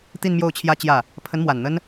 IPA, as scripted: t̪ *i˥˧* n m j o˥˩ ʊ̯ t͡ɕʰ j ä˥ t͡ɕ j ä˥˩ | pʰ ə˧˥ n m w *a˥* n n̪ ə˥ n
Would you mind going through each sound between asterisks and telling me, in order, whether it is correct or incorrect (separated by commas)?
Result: correct, incorrect